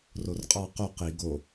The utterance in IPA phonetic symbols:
r o r qʼ ɑ q o q i ɡ o

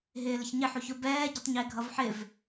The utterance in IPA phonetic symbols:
ɦ ɪː l ɪ ç ɲ ɪ ħ u ç ʊ b ɛː ɟ ɪ tˤ ɲ ɪː ɡʱ ʌ v ħ ɪ v

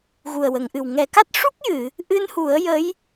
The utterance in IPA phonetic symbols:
ɣ u˨˩ ə̯ w ə˨˩˨ ŋ ʔ ɨ˨˩ w ŋ ɛ˨˩˦ k a˦˥ t̚ ʂ u˦˥ k̚ j ɨ˨˩˨ | ʔ ɨ˧ n h u˨˩˦ ə̯ j ə˧˥ j

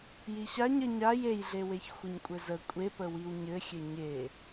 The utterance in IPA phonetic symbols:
j i ɕ a ɲ ə ɲ a j e j ɮ e w e ç xʷ ɘ ɲ kʷʼ ɘ z ə kʷʼ e p ə w i w ɲ ɘ xʲ ɘ ɲ e

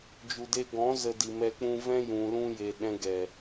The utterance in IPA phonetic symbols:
d͡ʒ u˨ d e˧ ɡ ɔ̃˨˦ z ə˧ d i˨ m ɛ˧ k͡p ũ˧ v ɛ̃˦ j ũ˨ l ũ˧ j e˨ ɗ ɛ̃˧ ɡ ɛ˨

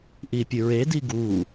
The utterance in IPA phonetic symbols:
ʔ i pʲ ɨ ɹ e d i ɡ u

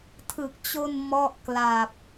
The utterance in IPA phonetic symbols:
tʰ ɯ˨˩ k̚ t͡ɕ o˧ n m ɔ˥˩ ʔ k l a˨˩ p̚

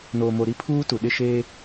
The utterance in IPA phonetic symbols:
n oː˨ m o˨ ɾ i˦ pʰ uː˦ t u˨ ɗ ɪ˦˨ ʃ eː˦

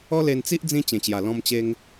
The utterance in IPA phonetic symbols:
ɔ˦ l e˧ n t͡s i˦ ʔ d͡z ĩ˦ t͡ɕ ẽ˨˩ t͡ɕ j a˨˩ l ɔ̃˧ m t͡ɕ e˧ ŋ

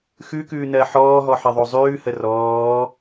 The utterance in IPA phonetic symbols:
x ʉ k ʉː n ɜ ħ ɔː ɦ ɔ ħ ɜ ðˤ o zˤ ʉː h ə r ɔː

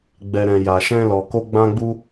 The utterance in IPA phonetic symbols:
ɡ͡b ɛ˨ ɾ ɛ̃˨ j a˨ ʃ ɛ̃˧ l ɔ˨ k o˧ ɡ͡b ã˧ ɡ͡b u˧

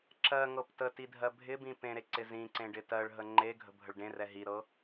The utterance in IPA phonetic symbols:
ǁ ɜ ŋ ɤ p t ə t i dʱ ɜ bʱ ɪ b ĩ p ẽ ɾ e ǀ ɪ z ĩ ǀ ẽ ɖ ɪ t ɜ ɭ ɦ ə ŋ͡ǃ e ɡʱ ə̤ bʱ ə ɭ ɖ ẽ r ɛ ɦ i ɾ ɤ

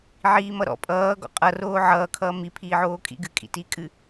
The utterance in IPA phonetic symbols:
ʕ iː m ʌ ɾ ɔ̰ pʼ ʌː ɡ ɔ̰ qʼ ʌ r oː ʕ ʌː kʰ ʌː m i pʰ iː ʕ oː kʼ ḭ ɡ ɨ kʼ ḭ t iː kʼ ɨ

